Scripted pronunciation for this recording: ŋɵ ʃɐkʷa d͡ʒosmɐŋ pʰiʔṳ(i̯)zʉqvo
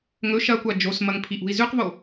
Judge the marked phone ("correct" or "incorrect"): correct